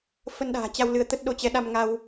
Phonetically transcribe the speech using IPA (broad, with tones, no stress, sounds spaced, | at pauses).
f ə˧ n ɗ a̤ː˨˩ t͡ɕ a˧ w l ɨ˨˦ ə̯ t̪ ə˦˥ t̚ ɗ o˧ t͡ɕ ɛ˨˦ ɗ a˧ m ŋ a˧ w